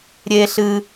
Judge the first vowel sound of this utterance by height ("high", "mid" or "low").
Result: mid